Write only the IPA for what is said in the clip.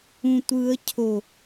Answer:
ũ tʷ ɯ ə̯ cʰ o

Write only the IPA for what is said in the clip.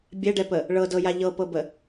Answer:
bʲ ɛ ɖ ɛ p ə | ɭ ɤ d ɤ j a ʎ ɤ p ɤ b ə

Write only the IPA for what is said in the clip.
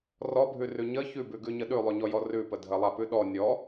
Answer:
r ɔ bʱ ʉ r ʉ ɲ ə ç ʉ b ʉ ɡ ʉ ɲ ə ɗ ʉ lˠ ʉ ɲ ɔ j ɔ r ʉ p ə dʱ ə lˠ a p ʉ ɗ ɔ nʲ ɔ

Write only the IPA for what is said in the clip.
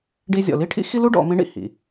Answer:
ɖ i˧ zʲ ɔ̰˩ l i˥ ʈʰ ḭ˥ x i˥ l u˥ ɖ ɔ̰˩˧ m ĩ˧˥ ɳ ḭ˩ h ḭ˩

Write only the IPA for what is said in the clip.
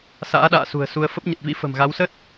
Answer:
s a̰ː˧˥ ɗ a̰ː˧˨ s ṳ˨˩ ə̯ s u˧ ə̯ f ə˦˥ p̚ ɲ ə˨˩ t̚ v ḭ˧˥ f ə̤˨˩ m ɣ a˨˦ w s ə˦˥ t̚

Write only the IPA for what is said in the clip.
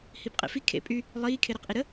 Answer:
h i b qʼ ḛ f i kʰ ḛ pʼ y | lˠ iː kʰ e ɾ e q ʔ i ɾ ə

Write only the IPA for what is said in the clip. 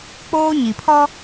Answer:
k͡p oː˦ ɲ i˨ pʰ ɔ˦

